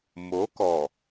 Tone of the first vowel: rising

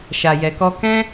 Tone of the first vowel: low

